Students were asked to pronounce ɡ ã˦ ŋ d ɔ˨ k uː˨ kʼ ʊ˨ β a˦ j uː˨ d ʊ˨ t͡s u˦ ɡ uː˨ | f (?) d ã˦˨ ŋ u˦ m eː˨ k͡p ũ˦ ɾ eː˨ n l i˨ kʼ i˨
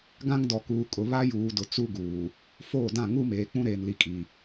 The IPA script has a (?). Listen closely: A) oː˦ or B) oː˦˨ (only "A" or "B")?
B